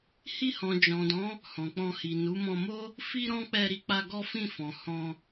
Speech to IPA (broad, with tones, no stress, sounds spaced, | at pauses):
h i˧ h ɔ̃˨ d͡ʒ ɔ̃˨ d ɔ̃˨˦ | h ɔ̃˨ k͡p ɔ̃˧ h i˨ n u˨˦ m ɔ̃˧ m o˦ | f i˦ ɾ ɔ̃˦ k͡p ɛ˧ ɾ i˧ k͡p a˧ ɡ ɔ˦ f ĩ˦˨ f ɔ̃˨ h ɔ̃˧